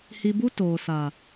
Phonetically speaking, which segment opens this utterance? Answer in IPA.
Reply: h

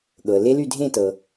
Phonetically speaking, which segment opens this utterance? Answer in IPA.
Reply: ɠ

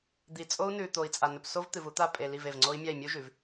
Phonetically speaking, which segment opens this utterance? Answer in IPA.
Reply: d̪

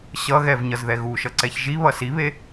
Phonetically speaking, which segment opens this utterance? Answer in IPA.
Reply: ɕ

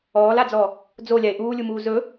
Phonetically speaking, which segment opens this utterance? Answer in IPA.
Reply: ɔː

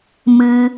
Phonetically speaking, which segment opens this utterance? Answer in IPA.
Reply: m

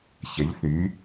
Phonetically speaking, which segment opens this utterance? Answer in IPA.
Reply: ç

